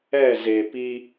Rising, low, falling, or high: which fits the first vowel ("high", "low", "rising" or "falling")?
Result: falling